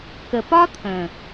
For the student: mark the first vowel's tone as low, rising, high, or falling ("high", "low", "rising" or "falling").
low